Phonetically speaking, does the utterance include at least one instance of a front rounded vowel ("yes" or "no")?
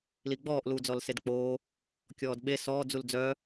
yes